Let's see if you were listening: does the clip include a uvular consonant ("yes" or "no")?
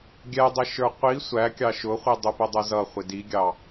yes